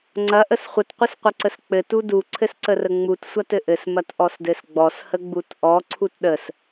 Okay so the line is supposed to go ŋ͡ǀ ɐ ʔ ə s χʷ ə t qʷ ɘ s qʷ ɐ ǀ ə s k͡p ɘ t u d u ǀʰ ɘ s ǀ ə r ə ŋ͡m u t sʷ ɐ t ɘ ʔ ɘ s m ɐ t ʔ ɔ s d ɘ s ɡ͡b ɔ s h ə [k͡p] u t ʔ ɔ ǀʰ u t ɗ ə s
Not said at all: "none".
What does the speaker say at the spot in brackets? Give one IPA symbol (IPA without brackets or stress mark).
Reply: ɡ͡b